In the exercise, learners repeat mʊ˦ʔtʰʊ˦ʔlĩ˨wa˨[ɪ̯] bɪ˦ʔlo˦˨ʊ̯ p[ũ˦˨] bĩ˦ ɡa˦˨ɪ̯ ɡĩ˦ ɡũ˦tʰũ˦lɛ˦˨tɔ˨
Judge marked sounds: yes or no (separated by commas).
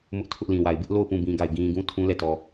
yes, yes